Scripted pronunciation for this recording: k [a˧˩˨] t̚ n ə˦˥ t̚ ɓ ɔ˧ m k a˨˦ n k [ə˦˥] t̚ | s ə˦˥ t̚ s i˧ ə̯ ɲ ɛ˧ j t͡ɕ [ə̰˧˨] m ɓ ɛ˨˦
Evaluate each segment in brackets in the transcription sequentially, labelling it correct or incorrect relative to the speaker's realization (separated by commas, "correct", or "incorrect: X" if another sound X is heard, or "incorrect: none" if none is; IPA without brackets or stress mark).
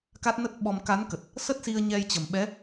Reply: incorrect: a˦˥, incorrect: ə˨˩, incorrect: ə˨˩